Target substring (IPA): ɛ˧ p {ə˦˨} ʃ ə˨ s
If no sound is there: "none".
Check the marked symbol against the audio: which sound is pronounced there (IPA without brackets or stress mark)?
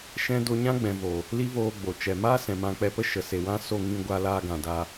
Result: ə˦